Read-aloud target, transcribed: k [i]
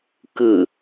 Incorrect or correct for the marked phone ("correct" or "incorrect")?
incorrect